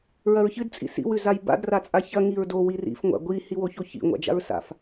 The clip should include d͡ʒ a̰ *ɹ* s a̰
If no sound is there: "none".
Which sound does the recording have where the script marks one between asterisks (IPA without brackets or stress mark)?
ɹ